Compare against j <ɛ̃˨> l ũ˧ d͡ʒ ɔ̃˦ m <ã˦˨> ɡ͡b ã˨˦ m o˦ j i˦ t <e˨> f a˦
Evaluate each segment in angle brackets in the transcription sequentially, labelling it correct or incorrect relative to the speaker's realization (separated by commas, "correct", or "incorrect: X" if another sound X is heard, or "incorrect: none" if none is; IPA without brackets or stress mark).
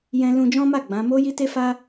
incorrect: ɛ̃˧, incorrect: a˦˨, incorrect: e˦